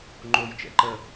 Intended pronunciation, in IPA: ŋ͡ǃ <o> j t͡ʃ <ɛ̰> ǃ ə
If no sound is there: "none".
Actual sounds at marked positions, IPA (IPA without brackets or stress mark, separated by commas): o, ɛ̰